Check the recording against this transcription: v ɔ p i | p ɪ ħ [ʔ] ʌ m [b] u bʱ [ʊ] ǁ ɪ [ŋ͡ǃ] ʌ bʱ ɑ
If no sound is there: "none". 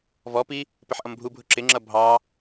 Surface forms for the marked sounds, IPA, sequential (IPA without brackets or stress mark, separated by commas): ʔ, bʱ, ʊ, ŋ͡ǁ